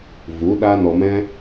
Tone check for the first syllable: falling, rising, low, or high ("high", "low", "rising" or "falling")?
rising